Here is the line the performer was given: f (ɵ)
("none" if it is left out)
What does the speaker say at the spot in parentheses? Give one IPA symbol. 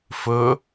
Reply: ɵ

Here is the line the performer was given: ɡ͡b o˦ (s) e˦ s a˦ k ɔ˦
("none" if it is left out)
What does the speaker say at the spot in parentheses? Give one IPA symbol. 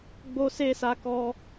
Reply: s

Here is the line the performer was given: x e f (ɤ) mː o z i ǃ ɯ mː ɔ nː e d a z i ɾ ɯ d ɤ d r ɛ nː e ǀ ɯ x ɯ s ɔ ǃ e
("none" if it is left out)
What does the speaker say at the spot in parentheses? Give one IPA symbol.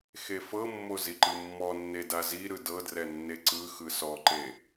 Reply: ɤ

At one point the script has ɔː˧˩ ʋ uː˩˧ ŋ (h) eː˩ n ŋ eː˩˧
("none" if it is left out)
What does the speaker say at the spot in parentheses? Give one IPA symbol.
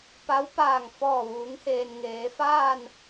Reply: h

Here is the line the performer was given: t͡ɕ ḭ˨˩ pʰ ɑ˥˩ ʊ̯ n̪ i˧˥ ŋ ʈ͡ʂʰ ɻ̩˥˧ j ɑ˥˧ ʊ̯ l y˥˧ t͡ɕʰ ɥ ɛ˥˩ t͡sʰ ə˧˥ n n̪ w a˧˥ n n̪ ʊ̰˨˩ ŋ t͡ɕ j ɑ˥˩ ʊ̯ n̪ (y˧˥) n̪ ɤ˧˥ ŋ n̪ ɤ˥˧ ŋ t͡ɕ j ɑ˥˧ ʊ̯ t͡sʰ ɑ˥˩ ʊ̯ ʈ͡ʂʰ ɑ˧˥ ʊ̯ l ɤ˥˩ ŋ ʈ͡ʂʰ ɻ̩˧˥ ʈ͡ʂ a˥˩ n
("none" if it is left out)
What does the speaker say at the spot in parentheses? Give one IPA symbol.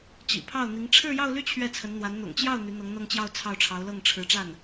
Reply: y˧˥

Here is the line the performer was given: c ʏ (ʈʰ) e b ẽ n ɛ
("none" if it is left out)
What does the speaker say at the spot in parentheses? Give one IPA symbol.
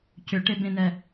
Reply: ʈ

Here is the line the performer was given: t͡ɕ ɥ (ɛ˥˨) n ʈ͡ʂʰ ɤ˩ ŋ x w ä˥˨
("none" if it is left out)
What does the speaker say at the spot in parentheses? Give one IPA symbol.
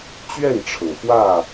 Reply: ɛ˥˨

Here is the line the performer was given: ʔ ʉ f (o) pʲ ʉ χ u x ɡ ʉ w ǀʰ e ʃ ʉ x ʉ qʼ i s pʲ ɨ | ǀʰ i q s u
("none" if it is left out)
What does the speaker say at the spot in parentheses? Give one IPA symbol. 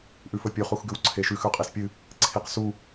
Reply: ɵ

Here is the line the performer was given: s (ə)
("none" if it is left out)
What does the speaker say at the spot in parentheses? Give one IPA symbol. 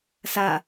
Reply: a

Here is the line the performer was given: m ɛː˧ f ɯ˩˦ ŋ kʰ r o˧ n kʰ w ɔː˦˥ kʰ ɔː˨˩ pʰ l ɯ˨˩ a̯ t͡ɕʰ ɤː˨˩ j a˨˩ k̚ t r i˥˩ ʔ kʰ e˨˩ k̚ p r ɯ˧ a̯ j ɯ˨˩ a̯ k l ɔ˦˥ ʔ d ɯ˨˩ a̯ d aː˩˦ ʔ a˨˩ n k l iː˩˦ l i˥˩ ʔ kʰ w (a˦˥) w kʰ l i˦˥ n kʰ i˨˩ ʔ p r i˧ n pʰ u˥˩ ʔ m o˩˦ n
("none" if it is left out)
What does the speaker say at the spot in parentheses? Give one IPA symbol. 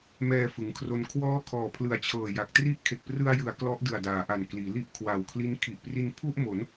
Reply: a˨˩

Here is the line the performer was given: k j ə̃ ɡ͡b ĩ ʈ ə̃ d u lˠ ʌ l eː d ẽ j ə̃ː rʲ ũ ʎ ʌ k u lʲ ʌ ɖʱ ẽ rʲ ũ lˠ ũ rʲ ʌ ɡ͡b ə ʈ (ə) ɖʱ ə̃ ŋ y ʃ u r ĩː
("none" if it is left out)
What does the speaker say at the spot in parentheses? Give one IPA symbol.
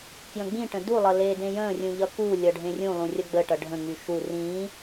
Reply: ʌ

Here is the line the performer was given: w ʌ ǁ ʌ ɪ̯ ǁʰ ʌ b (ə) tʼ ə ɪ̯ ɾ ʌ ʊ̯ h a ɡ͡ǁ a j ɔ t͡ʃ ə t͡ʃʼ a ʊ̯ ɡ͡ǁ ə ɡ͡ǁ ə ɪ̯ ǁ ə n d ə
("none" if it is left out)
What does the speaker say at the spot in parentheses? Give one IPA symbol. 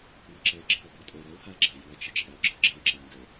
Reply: ɔ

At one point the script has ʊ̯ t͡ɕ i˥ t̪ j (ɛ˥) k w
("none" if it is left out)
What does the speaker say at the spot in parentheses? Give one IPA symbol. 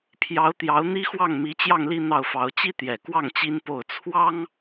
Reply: ɛ˨˩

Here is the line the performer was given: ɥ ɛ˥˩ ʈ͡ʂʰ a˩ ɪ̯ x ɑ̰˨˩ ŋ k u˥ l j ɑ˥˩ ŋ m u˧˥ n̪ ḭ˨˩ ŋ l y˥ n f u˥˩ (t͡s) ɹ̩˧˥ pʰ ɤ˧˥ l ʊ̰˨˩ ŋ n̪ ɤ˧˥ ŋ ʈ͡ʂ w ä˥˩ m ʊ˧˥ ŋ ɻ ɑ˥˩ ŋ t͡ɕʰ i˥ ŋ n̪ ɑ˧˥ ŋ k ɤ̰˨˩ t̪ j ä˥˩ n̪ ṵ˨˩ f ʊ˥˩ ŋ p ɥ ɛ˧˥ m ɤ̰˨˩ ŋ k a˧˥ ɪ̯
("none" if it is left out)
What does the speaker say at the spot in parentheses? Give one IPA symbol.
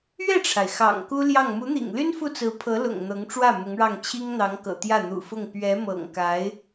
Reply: t͡s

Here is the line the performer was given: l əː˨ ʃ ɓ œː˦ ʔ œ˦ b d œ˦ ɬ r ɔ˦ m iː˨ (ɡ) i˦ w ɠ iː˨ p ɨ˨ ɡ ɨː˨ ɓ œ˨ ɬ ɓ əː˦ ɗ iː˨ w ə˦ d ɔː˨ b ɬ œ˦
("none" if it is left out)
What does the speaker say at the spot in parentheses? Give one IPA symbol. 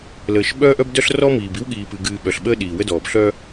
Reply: b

